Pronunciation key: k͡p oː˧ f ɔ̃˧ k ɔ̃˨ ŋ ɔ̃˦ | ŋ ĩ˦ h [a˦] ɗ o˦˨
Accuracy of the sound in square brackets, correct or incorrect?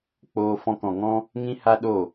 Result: correct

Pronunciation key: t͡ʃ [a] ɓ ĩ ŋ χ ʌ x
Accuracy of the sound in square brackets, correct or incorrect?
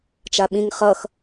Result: correct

